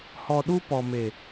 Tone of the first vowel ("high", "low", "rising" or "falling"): low